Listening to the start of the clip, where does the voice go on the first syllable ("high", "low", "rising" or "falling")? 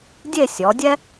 falling